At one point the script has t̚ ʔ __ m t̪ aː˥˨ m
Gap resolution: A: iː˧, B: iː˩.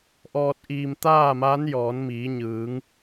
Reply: A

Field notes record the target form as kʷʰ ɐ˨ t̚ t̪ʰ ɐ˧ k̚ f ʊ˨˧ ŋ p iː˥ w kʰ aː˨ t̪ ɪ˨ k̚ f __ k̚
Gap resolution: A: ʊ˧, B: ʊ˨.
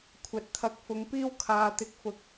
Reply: B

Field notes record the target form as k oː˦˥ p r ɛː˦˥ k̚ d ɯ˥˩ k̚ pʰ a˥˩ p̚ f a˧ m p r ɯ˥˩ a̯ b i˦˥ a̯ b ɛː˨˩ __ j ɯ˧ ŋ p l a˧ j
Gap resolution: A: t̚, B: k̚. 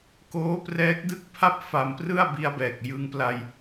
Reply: B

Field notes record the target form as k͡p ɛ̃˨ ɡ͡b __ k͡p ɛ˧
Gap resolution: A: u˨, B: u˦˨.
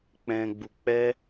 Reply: A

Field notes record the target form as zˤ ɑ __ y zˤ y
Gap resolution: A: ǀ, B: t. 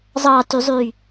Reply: B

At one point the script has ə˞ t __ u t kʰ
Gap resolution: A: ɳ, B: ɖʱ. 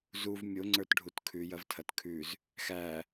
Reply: B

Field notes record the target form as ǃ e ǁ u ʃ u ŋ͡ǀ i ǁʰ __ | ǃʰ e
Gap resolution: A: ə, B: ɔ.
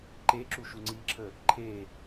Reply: A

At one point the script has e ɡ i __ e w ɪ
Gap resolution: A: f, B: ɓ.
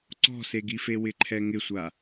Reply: A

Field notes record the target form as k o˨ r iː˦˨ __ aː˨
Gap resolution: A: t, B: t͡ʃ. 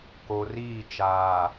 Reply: B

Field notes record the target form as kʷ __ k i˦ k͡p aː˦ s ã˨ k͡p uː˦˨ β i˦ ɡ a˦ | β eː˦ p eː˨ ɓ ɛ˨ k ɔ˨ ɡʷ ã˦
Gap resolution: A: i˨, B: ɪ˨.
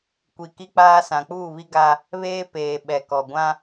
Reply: A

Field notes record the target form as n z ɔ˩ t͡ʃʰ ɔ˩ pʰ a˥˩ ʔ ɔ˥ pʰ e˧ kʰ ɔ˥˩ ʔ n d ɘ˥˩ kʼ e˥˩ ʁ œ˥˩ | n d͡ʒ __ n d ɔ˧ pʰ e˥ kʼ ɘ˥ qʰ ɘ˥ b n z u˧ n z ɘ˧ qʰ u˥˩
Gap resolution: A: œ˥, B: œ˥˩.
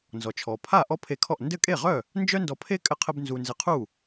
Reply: A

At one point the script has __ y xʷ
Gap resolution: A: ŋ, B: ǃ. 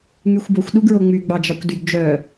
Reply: A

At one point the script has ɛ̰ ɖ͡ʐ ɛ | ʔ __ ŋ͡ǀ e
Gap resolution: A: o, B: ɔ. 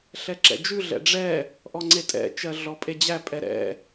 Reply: B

